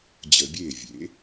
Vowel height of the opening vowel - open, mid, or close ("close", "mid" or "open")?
mid